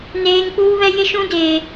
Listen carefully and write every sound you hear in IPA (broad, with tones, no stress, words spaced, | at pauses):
neː˦ŋ k͡puː˦βɛ˦ jɪ˦ʃũ˦ deː˦